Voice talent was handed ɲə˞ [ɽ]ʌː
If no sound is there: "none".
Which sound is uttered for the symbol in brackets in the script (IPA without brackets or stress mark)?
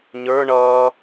ɳ